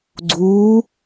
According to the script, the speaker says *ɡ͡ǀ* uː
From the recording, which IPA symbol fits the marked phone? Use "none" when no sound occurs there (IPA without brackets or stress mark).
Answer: ɡ͡ǀ